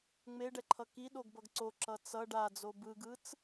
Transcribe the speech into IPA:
ŋ͡meɖɛǃʰʌ kiɗoɡbʌɡ ǀoǁʌ t͡sʌ ɖad͡zo bɯɡɯt͡s

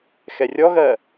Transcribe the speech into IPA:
xɛrʲɔɣɜ

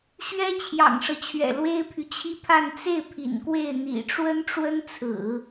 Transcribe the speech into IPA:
ɕɥɛ˥t͡ɕʰjɑ̰˨˩ŋʂɤ˦t͡ɕʰɥɛ̰˨˩ lwe˥ɪ̯pʰy˨t͡ɕʰi˥pʰa˥˧n t͡se˥˩ɪ̯ pʰḭ˨˩nkwe˥˩ɪ̯ n̪ḭ˨˩ʈ͡ʂwə˥n ʈ͡ʂwə˥nt͡sʰɹ̩˨˩˦

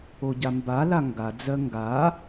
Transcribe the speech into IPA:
oɟambala ŋɡa d͡zɜŋɡa

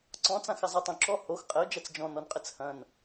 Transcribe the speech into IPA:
ǀɔ̃t͡sãxɐ zˤitˤõǁɔ hox qʼɘʊ̯d͡ʒɐt͡s d͡ʒɔ̃nɔnqʼɘt͡s hɐ̃n

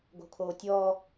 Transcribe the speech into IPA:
ɡo̤kʰoːtʲɔː

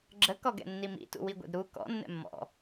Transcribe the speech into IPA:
ɡ͡ǁəkɔɡɛ̰ nːimḭtṵ wiɡʷɛ̰dɾu kɔ̰ nːɛ̰mːɔ̰

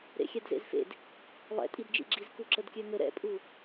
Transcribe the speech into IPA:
ɾḛxʲɛdzḛzfḛd | lˠɛ̰tʼidd͡ʒḭɡ͡ǁiz kuǁədkʲøŋə ɾɛ̰pʼu

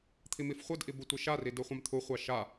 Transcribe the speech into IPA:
t̪ʰimifχʷɯdʔi butʷiʃari dɯχʷɑ̃mt̪ʰuχʷɑ ʃa

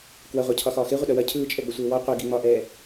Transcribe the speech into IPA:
kwɐʁʷa cʰɒxɒːxe ʁʷəɗɐwɐ cʰɯːt͡ʃʼɛɡ͡bəsʷeː wɔ qʷe ɡiŋ͡mɒʔɛː

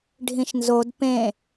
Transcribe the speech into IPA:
ɖʱĩʃnzod pẽ

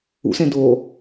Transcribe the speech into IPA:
ṵsẽdoː

